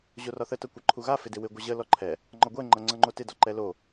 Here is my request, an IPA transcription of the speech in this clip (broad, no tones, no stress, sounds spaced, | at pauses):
ʑ o r ɒ θ ə t ʌ kʷ ʌ ǃʰ u ɣ a f ɪ d ɪ w ɪ ɡʷ ʌ ʑ ə l ɔ ǃʰ ɛ | ŋ͡ǃ ɒ ɡʷ ɛ ŋ͡ǃ ʌ ŋ͡ǀ ʌ ŋ͡ǃ o t ɪ d ɒ ǃ ɛ l o